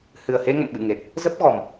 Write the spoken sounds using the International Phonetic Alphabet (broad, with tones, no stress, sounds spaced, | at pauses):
h ɨ˨˩ ə̯ h e˧ ŋ ə̰˧˨ m ɓ ɨ̰˧˨ ŋ e˨˩ t̚ | z ə˦˥ p̚ ɣ ɔ˨˩ m